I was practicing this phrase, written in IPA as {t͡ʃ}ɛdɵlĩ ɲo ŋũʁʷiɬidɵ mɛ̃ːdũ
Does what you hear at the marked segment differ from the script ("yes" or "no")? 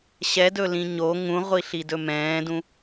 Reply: yes